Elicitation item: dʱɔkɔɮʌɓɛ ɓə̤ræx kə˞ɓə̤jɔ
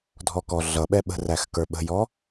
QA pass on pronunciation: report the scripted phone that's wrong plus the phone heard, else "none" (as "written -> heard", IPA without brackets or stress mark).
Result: none